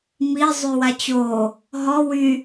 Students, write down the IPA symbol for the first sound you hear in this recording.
m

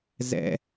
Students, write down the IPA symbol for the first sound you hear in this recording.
z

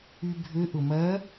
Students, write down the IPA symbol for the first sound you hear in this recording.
y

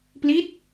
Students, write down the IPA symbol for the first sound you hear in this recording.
p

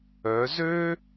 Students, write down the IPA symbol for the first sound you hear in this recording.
œ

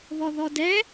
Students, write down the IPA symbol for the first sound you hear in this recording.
β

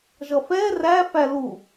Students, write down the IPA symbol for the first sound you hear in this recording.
ʒ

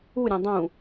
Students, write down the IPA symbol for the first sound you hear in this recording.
u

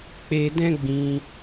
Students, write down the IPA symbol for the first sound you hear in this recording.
k͡p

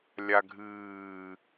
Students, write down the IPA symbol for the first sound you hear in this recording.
lʲ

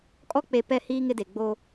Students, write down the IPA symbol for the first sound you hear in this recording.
kʼ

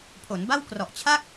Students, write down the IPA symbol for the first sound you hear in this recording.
pʰ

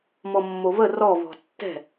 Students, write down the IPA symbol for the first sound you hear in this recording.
m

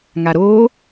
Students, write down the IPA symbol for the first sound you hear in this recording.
ŋ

